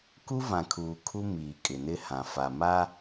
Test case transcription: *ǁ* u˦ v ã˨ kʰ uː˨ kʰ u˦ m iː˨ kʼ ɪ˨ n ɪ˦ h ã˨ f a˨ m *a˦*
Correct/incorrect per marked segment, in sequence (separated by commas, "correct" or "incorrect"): incorrect, correct